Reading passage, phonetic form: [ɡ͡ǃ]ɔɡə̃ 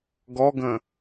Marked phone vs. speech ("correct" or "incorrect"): incorrect